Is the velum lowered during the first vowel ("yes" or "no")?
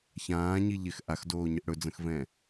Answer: yes